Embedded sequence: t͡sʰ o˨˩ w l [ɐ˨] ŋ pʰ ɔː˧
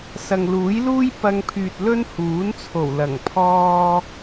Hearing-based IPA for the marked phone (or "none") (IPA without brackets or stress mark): ɐ˨˩